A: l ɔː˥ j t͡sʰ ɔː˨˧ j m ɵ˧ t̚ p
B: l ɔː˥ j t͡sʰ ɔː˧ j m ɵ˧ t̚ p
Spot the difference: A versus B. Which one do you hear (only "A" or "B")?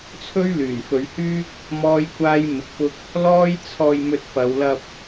B